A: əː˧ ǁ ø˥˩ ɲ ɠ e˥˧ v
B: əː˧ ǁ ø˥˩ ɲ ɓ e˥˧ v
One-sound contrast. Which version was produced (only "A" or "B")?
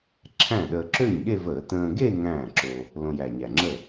A